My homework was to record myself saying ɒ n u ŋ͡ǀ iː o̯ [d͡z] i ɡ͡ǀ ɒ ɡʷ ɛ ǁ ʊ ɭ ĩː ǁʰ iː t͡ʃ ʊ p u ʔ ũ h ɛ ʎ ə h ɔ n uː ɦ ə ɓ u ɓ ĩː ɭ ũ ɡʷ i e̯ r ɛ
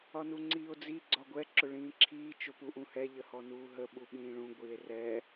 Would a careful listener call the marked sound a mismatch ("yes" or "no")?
no